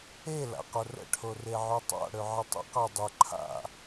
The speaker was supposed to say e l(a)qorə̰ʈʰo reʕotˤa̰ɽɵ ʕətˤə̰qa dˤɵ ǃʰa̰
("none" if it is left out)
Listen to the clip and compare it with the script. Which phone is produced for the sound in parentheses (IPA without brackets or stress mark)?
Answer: a̰